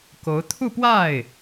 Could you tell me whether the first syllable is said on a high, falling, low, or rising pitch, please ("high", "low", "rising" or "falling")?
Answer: rising